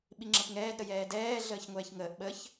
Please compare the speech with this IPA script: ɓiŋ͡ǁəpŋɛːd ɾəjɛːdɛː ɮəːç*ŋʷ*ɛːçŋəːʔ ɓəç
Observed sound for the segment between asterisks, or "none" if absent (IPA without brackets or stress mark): ŋʷ